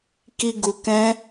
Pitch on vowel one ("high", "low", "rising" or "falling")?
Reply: low